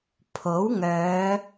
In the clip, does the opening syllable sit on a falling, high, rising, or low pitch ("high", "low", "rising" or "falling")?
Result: rising